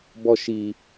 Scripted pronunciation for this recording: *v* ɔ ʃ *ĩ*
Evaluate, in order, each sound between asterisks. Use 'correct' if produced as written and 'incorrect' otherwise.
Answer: incorrect, incorrect

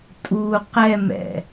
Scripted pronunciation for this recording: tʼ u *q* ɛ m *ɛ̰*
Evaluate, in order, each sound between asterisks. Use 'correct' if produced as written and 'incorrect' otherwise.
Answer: correct, correct

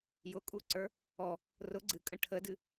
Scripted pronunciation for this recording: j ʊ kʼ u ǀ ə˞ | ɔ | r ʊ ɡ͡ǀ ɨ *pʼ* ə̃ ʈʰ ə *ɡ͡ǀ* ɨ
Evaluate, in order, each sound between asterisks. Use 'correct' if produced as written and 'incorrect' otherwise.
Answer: incorrect, incorrect

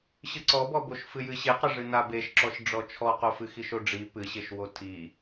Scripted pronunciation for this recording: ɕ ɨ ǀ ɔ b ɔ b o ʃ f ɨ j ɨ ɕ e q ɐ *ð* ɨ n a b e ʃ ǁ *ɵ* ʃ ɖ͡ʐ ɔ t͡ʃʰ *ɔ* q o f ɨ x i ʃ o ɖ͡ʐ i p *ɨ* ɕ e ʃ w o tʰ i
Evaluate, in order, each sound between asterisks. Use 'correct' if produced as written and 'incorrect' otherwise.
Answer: incorrect, incorrect, correct, correct

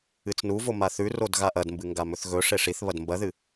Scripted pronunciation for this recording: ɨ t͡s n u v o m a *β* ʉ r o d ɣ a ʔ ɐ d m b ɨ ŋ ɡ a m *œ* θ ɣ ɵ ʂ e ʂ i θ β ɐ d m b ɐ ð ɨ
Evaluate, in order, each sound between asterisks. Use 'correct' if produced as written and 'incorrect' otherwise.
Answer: incorrect, incorrect

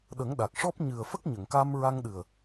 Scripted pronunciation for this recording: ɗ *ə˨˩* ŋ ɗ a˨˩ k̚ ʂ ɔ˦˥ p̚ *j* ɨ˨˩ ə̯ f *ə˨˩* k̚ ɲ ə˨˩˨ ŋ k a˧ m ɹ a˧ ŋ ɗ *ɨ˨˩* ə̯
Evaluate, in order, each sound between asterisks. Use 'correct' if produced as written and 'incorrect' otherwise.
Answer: incorrect, incorrect, incorrect, correct

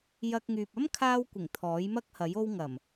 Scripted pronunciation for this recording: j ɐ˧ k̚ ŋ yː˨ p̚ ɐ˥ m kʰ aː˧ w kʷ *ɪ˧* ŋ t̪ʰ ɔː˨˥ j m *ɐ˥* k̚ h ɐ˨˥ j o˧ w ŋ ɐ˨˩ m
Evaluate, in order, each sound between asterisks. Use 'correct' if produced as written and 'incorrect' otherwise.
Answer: incorrect, correct

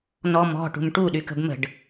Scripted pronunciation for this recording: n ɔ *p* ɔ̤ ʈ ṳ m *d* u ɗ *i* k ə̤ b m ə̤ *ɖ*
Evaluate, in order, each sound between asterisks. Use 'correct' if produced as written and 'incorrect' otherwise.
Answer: incorrect, incorrect, incorrect, correct

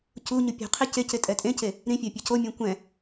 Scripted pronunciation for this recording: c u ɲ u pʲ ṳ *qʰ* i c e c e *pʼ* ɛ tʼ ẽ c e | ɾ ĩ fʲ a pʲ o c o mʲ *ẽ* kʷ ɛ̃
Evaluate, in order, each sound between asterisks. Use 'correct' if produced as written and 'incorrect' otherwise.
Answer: correct, incorrect, incorrect

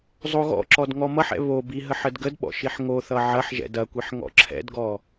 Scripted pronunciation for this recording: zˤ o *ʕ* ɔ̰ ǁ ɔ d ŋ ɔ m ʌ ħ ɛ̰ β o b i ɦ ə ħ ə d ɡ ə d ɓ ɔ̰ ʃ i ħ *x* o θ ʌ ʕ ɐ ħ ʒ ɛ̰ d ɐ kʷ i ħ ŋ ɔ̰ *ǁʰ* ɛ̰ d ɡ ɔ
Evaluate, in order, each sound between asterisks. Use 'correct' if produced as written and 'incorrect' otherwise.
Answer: incorrect, incorrect, correct

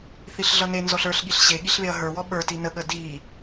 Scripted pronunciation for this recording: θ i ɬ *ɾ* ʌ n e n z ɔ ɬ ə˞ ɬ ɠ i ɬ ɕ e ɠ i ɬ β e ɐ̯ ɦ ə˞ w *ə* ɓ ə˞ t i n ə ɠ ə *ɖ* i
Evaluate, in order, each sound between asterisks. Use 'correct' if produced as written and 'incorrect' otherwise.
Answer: incorrect, incorrect, incorrect

